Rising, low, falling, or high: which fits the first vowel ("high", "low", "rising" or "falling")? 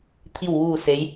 falling